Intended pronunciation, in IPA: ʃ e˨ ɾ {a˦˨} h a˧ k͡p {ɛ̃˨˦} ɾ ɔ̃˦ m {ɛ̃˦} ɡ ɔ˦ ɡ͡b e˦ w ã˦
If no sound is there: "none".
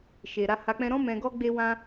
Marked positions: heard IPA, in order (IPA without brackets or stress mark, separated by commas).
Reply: a˧, ɛ̃˦, ɛ̃˧